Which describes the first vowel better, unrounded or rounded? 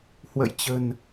unrounded